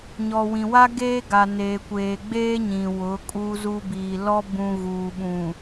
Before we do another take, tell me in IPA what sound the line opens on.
ɲ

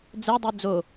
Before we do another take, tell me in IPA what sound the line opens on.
d͡z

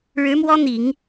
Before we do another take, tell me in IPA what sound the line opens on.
ɻ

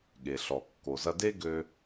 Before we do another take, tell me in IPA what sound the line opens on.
ɠ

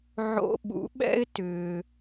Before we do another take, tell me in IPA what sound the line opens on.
ʕ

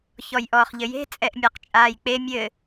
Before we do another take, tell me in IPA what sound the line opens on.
ç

